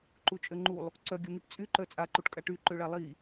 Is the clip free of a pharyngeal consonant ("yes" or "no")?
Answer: yes